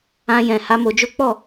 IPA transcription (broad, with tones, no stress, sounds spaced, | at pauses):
ã˧ j ɛ̃˨ h a˨˦ m o˧ d͡ʒ o˦ k͡p ɔ˦˨